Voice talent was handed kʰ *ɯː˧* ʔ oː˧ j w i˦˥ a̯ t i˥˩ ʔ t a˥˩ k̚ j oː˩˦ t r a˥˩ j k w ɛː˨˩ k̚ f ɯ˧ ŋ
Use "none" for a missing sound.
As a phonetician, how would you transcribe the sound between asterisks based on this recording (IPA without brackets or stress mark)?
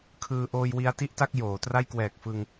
ɯː˧